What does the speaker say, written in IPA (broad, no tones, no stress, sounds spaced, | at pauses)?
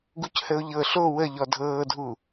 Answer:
ɡ u c h ə ʊ̯ ʎ ɤ ɬ o w ə ʎ ɔ dʱ ɤː dʱ u